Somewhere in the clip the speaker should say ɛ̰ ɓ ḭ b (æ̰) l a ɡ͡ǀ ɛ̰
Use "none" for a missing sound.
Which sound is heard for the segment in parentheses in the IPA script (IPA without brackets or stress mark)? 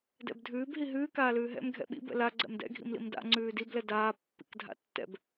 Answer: ɛ̰